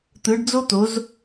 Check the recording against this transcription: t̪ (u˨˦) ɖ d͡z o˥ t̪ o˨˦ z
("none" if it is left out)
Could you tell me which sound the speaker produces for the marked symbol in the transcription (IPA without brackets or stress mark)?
ɯ˨˦